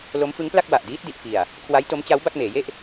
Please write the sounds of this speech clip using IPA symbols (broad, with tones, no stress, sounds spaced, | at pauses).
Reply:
l o˦˥ m f ɯ˦˥ ŋ p l a˥˩ k̚ w a˨˩ ʔ d iː˦˥ t̚ d i˨˩ ʔ f i˨˩ a̯ | kʰ w a˦˥ j t o˦˥ m t͡ɕ a˦˥ w b a˥˩ k̚ m eː˩˦ j e˦˥ ʔ